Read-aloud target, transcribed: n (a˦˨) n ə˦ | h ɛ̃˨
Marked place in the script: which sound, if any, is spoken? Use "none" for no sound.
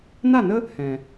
a˦˨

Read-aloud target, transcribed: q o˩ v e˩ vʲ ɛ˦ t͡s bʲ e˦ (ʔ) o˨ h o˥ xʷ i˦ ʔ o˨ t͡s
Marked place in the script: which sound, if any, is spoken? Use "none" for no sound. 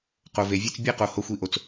q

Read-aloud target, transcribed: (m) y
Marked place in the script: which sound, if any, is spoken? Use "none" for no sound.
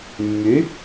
mː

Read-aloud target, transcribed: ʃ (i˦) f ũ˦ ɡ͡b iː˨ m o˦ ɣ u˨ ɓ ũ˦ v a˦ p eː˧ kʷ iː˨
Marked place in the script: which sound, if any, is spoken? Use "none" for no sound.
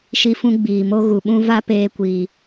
i˦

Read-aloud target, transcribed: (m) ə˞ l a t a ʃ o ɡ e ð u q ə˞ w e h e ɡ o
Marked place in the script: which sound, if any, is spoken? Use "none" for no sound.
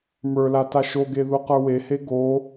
m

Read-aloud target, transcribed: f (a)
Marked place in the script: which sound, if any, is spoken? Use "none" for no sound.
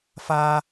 a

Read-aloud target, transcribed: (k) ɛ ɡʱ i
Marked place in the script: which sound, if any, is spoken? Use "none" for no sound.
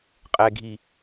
qʼ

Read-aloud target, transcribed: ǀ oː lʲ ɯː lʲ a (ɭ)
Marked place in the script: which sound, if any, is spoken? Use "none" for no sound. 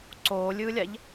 ʎ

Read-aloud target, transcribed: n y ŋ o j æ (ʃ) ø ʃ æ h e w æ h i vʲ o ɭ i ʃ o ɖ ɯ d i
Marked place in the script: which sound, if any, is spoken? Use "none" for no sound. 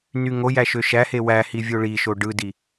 ʃ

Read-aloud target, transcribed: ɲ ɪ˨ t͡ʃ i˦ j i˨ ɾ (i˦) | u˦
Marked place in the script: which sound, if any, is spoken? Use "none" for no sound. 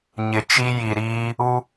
iː˦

